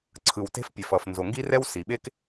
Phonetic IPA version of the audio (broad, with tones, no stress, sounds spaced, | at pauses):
ǀʰ ɯ˩ w t e̤˥ f pʲ ɛ˩ f ʌ˩ f n z o˩ ŋ ɡ i˥ r ɛ˥ w s i˩ ɓ e˥ k